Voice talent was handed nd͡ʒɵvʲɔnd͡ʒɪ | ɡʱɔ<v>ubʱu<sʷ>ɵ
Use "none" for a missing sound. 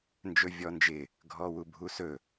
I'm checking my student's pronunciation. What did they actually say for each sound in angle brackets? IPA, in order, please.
w, s

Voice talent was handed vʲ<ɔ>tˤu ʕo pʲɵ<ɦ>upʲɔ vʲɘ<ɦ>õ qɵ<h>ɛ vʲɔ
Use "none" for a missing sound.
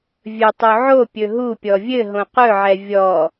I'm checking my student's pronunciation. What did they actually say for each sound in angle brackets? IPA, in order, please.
ɵ, ɦ, ɦ, ʕ

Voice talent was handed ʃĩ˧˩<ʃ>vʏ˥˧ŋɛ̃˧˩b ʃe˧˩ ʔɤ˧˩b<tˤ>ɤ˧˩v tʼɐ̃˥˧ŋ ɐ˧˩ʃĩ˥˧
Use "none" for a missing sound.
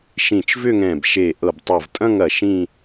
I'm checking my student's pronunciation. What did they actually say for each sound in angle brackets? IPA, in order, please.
t͡ʃ, tˤ

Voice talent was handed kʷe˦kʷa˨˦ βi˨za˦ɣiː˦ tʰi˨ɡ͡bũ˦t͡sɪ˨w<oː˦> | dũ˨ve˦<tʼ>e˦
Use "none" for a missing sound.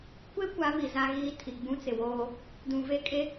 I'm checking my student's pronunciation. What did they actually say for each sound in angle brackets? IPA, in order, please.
oː˦, kʼ

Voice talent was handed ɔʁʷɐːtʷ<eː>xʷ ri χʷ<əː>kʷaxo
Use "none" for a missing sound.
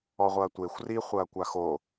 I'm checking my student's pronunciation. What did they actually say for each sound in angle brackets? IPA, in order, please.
e, ɐː

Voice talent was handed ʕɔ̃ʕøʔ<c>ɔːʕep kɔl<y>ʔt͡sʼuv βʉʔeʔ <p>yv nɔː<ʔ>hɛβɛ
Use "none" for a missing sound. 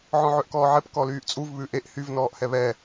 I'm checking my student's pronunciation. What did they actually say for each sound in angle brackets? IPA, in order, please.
k, yː, h, ʔ

